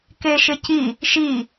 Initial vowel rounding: unrounded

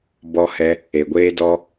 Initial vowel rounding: rounded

